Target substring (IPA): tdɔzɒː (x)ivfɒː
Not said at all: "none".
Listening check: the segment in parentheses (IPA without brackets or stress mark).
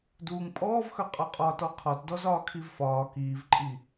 kʰ